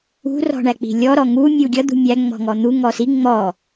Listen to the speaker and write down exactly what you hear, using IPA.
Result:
ṳ r ɔ̤ ɳ æ k͡p i̤ lʲ ɔ ɾ ɔ ŋ u mʲ u ɡʲ ʌ d̪ ṳ mʲ æ ŋ͡m ɔ̤ ŋ ɔ n̪ u ŋ ɔ s i ŋ͡m ɔ

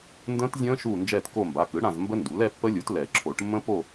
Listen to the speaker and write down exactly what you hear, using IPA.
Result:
n d ə̃ː˦˥ t zʲ ə̃ː˦˥ ʃ uː˦˨ n d͡ʒ ɛː˦˨ t k o˦˨ m b a˩˧˩ k ɯ˩˥ ɽ ã˦˨ z m b ə˦˥ n d u˩˥ l ɛ˦˥ pː ə˦˥ lʲ u˩˥ t l ɛ˨˩˦ ǁʰ o˨˩˦ ʈ mː ə̃˦˥ p o˦˨

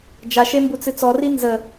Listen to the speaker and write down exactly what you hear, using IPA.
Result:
d͡ʒ a ʃ e m b u t͡s ɨ t͡s ɔ r i n z ə

